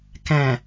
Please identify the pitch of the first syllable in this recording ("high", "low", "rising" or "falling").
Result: low